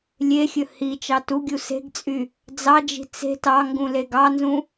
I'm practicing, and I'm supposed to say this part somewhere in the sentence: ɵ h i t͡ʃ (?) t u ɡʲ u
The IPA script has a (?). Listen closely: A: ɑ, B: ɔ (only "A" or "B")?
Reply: A